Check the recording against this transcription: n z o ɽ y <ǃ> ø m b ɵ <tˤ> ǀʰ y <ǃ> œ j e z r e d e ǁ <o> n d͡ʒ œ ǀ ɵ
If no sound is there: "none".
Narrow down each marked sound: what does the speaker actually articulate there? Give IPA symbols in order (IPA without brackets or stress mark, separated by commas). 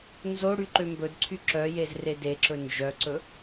ǃ, d, ǁ, ɵ